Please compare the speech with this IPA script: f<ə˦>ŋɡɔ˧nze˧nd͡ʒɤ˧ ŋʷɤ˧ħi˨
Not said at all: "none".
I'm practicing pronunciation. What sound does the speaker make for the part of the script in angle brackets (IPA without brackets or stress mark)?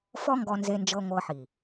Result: ɔ˦